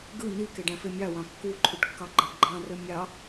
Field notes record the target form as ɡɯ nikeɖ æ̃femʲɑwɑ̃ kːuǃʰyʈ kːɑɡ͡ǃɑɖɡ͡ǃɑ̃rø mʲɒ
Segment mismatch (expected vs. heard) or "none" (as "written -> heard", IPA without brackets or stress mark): ɒ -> ɑ